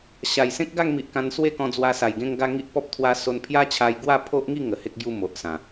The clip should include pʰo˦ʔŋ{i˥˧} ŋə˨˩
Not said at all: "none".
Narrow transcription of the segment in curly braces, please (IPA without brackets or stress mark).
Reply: i˥˧